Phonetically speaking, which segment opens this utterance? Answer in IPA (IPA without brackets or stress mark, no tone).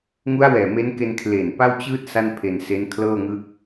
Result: ŋ